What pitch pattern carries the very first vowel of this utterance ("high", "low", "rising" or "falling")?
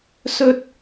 high